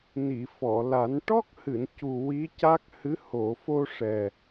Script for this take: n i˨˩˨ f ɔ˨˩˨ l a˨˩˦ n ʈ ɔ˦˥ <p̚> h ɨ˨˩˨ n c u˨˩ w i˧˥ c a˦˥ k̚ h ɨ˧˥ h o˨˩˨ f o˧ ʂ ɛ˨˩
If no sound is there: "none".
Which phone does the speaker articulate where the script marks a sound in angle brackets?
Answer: k̚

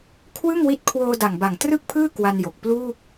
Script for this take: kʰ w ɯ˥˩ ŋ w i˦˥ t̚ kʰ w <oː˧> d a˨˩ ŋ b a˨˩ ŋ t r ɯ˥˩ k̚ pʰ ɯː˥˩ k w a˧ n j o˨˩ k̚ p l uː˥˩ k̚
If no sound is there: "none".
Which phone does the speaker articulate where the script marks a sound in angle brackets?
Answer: oː˧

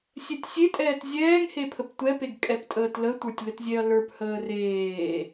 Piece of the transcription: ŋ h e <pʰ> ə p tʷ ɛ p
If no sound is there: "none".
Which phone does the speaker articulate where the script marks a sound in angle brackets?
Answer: pʰ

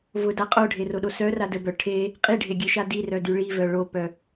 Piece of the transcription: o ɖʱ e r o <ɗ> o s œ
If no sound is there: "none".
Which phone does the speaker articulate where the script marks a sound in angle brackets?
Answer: ɗ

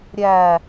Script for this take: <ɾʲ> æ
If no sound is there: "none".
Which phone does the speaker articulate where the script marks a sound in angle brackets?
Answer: ɾʲ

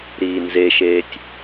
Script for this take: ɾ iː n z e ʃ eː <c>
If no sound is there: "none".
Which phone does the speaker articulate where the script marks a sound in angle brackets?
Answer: tʲ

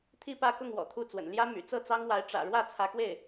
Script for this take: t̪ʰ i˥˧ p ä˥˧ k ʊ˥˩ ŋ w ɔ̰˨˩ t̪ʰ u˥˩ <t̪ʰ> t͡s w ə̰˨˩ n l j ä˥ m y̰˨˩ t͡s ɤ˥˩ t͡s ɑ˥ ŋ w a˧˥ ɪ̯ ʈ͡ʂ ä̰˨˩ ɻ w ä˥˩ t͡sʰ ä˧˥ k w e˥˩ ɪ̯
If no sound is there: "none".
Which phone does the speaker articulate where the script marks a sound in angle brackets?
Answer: none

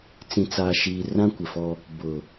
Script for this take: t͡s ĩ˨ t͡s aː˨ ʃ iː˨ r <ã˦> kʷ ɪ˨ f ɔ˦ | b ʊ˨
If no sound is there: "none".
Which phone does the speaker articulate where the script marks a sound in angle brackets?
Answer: ã˦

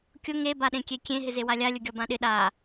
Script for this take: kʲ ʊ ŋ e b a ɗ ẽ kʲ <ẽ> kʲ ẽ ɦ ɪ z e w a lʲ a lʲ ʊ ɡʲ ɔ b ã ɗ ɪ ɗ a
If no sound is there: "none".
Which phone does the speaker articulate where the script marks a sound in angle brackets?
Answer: e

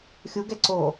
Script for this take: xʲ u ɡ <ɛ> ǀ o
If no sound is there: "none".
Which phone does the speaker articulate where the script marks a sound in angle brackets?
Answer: ɛ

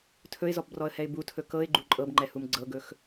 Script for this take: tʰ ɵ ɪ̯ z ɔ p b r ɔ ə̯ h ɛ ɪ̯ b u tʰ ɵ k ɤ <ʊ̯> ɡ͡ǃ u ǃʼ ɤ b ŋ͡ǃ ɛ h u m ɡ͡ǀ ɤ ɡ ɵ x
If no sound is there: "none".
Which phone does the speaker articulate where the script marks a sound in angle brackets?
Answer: ɪ̯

